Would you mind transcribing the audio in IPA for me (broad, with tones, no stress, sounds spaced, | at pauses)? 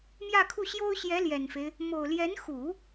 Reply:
m j ä˥˧ kʰ u˥˩ ɕ j o˥ ʊ̯ ɕ j ɛ˧˥ l j ɛ˨˩ n f e˦ ɪ̯ | m o˨˩ ʊ̯ l j ɛ˧˥ n x u˨˩˦